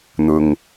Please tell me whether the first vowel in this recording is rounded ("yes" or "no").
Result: yes